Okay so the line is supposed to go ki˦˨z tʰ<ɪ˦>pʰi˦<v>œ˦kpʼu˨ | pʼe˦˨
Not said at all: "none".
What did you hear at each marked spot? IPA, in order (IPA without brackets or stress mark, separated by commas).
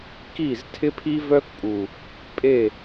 ɪ˦, v